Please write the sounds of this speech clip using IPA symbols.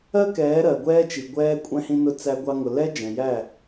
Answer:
ɜ˦kɛː˨˦ ɾɜ˨ɡʷɛː˦t͡ʃi˨ ɡʷɛː˧ kʷʼɛ̃˧hĩ˧nʊ˧ t͡sæ˧ɡʷɑ˧ŋʊ˨lɛ˦ d͡ʒɛ̃˨jæ˦˨

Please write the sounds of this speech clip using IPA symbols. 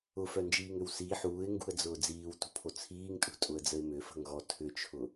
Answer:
ʊfœnd͡ʒiːŋʏw si ħuːɪ̯ŋɡṳə̯d͡zʊː d͡ziːwtṳpʰo t͡sʰiːŋtʼṳtʼʊə̯d͡zəɪ̯ mʏfə̤ŋɣɔ tʰʏt͡ʃʰʊ

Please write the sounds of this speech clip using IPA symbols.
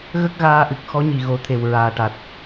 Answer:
ɣə˦˥k̚ɣaː˧ʔɨ˨˩k̚ xɔ˧˥ɲi˨˩ɣo˨˩˦t̪ʰe˨˩w ɹaː˨˩ʈa˨˩t̚

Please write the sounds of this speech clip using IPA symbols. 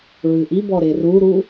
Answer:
ɹɨʔibɔ ɾeruɾu

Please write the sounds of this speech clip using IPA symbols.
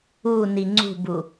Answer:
uni ŋ͡ǀṳbu

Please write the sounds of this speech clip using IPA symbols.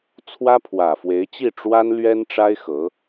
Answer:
t͡sʰwä˥pʰwä˨˩fwe˧˥ɪ̯t͡ɕi˥˩ ʈ͡ʂwa˥nlɥɛ˥nʈ͡ʂa˥ɪ̯ xɤ˧˥

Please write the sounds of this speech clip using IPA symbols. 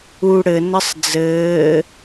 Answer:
u ɽɘ nəsˤd͡zɘː

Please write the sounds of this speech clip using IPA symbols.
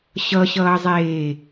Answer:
ɕʌɕʌːzˤeː

